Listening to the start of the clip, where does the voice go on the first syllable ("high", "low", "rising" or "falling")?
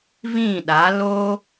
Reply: falling